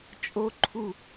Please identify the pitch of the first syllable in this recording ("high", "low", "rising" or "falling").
low